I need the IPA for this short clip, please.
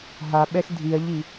ɦaɓɛx dʱiɐ̯ʎi

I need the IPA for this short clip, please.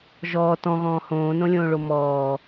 ʒɔː tɔ̃ɣɔ̃ː hõːnõlʲõːɭo mɔː

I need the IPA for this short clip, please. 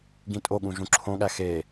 ɡĩtʼoɠũ ʒũǁʰõɠæ xe

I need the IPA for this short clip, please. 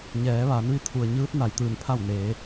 ɲɛː˩˧ʋaː˩˧nʋi˧ t̪ʰu˩ə̯ɲɯː˧˥t̚na˩j t̪ɯː˧˩npʰa˥˨wneː˩˧

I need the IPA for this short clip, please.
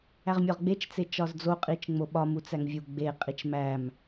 æʁmʲɒʁɡ͡bet͡ʃ t͡set͡ʃɒzd͡zo qʼit͡ʃŋ͡moɓɒm ut͡sæŋvʲu ɡ͡be qʼit͡ʃmæm

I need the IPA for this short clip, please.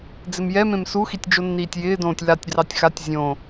d͡zɪmjɛmẽm suxitʲ d͡ʒonːiːtʲjɪːdõːtʲ latʲdrɑtʲ xatʲ zʲõ

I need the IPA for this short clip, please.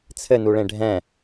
t͡sʰɘnuɭẽ ɖʱɛ̃

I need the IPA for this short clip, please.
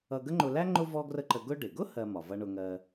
ʌ˧ɡə˥ŋ͡ǃʊ˧læ˥ ŋ͡ǃʊ˥ vɔ˥ɡrə˥ǃə˧ ɡʊ˧ɖɪ˩ɡʊ˥ hɜ˧ mɒ˩vʌ˧ɳʊ˧ŋɜ˧

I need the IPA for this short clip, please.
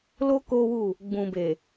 lo˦ ko˦wu˦˨ | ɡ͡bũ˨ be˨

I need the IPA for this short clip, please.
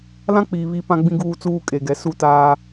lã˦k͡piː˨ βi˦ pã˦ɡ͡bĩ˦ ɡuː˦t͡suː˦kʼe˨ɡɛ˨ su˦taː˦

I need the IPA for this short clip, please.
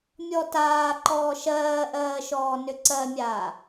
mʲɔtaː ǃɔːʃɜːʔɜːʃɔː nʏǀɜmʲaː

